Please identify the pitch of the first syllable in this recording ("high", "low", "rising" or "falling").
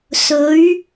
rising